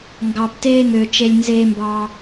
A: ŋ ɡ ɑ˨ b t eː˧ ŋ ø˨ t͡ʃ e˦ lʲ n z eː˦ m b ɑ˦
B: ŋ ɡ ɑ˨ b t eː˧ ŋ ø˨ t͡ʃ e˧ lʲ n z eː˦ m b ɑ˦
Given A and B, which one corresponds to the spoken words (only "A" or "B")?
B